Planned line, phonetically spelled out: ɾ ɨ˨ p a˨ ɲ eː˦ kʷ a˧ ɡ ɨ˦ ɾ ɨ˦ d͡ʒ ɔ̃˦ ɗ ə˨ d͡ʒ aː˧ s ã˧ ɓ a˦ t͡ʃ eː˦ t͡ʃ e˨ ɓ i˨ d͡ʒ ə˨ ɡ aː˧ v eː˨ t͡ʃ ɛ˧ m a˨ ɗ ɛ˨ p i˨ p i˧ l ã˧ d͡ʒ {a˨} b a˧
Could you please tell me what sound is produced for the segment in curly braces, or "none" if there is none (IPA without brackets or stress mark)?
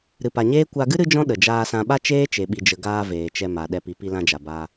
a˨